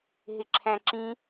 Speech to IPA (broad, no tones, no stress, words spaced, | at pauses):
ɦɪǁʰæ̃ǁĩ